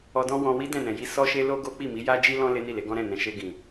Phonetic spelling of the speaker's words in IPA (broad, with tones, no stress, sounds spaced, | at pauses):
ɔ˧ d ɔ̃˦ w ɔ̃˧ w i˦ d ɛ̃˦˨ n ɛ̃˨ j i˧ s ɔ˧ ʃ e˧ l o˦ ɡ o˦ k͡p i˦˨ m i˨˦ j a˦ d͡ʒ i˦ l ɔ̃˦ l e˦ n i˦˨ l e˨˦ ɡ ɔ̃˦ ɾ ɛ̃˦˨ n ɛ̃˨ ʃ e˧ ɡ ĩ˨